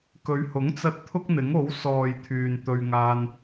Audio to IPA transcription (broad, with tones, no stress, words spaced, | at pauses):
kɵ˨˧ɥhʊ˨˥ŋt͡sɐ˧t̚ t̪ʰʊ˥k̚n̪ɪ˨˥ŋo˨˥w sɔː˨j t̪ʰyː˨nt̪ɵ˧ɥŋaː˧n